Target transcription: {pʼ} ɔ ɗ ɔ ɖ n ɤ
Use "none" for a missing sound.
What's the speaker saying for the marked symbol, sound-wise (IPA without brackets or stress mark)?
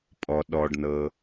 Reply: pʼ